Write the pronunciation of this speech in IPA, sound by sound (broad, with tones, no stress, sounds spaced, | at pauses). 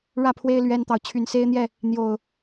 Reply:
ɻ ä˥˨ pʰ w e˦ ɪ̯ l ɥ ɛ˦ n t̪ ɑ˨ ʊ̯ t͡ɕʰ y˨˩ n s e˦ ɪ̯ n̪ j ɛ˥˨ | n̪ j o˨˩ ʊ̯